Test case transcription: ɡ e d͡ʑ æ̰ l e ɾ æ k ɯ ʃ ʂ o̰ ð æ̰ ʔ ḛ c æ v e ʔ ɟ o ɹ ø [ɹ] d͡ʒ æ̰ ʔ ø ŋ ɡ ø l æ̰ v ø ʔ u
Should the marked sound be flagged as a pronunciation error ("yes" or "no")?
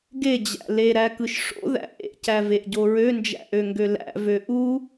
yes